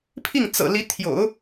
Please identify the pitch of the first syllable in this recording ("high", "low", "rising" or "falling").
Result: falling